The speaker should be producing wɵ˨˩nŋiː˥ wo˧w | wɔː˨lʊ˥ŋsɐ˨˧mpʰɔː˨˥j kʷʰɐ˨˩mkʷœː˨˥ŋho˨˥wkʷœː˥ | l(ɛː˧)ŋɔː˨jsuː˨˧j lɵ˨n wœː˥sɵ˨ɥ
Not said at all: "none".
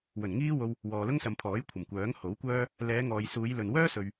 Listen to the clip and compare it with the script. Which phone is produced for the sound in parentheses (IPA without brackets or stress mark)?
ɛː˨˧